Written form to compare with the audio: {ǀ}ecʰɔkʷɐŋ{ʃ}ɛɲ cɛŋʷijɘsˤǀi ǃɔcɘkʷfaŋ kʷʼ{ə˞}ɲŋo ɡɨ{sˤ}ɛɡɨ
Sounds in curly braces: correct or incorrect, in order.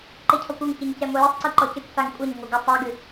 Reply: incorrect, incorrect, incorrect, correct

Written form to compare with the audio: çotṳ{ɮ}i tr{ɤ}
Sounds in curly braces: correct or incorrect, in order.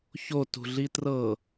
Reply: correct, correct

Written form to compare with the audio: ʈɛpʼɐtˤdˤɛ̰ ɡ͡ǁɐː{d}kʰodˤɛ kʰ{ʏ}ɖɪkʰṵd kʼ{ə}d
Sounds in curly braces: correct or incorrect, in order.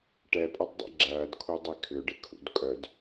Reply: correct, correct, incorrect

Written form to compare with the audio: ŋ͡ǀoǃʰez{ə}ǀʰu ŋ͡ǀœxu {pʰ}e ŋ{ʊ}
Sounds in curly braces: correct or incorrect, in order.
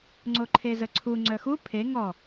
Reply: correct, correct, incorrect

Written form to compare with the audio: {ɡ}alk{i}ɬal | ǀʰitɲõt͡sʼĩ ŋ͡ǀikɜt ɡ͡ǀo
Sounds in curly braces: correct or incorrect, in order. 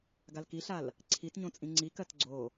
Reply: correct, correct

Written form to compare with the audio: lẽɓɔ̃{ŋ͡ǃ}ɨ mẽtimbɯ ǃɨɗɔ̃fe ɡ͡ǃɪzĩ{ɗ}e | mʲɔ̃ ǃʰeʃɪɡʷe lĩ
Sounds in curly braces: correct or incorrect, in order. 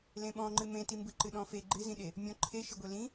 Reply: correct, correct

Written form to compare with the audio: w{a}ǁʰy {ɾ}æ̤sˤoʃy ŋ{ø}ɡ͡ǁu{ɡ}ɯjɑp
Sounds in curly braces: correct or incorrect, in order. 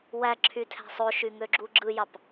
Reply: incorrect, incorrect, correct, incorrect

